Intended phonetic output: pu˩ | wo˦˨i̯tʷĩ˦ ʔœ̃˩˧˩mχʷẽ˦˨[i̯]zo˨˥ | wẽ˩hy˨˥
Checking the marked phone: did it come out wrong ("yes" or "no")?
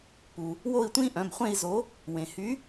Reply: no